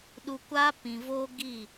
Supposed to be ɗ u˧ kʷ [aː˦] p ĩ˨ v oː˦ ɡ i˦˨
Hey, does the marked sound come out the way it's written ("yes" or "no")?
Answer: yes